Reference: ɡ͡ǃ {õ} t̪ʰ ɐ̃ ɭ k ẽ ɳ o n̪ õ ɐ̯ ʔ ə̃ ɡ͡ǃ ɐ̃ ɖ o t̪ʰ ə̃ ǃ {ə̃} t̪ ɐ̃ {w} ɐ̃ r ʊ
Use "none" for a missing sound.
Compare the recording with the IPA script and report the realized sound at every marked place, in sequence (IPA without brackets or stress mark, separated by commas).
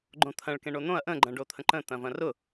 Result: õ, ə̃, v